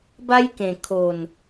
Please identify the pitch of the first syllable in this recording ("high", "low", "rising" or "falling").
high